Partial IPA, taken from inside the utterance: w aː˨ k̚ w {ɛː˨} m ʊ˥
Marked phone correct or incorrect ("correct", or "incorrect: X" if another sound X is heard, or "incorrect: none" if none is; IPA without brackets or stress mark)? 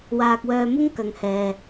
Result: incorrect: œː˨